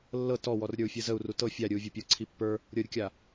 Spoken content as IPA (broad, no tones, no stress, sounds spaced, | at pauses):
lː ɤ t ɔ w ɔ r ɾʲ ə˞ u̯ fʲ ɯ z ə u̯ r u t ɤ fʲ a ɾʲ ɯ u̯ vʲ ɔ pʲ ɤ ǀʰ i pː ə˞ | ɾʲ ɤ ɾʲ ə kʲ a